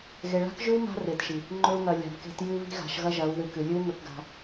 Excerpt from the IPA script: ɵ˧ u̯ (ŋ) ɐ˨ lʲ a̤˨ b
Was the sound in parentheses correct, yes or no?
yes